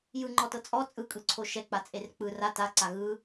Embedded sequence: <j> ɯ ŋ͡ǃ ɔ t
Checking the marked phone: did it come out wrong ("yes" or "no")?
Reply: no